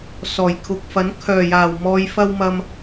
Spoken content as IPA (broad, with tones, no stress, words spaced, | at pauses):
sɔː˨˩jkʰʊ˨k̚fɐ˨˥n kʰœː˨˩jaː˨˩w mɔː˨jfɐ˧w mɐ˧m